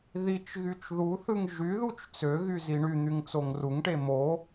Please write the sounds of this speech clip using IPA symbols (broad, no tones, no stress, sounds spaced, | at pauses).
ð i t͡ʃ ɣ y t͡ʃ ð u θ ɯ ŋ ʒ y ð u t͡ʃ t͡s ø ɣ y z i ɳ y n̪ y ŋ t͡s o ŋ r u ŋ ʈ e m o